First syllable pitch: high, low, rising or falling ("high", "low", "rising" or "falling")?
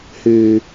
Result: high